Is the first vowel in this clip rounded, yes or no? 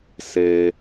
no